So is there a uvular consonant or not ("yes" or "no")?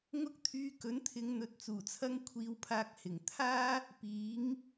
no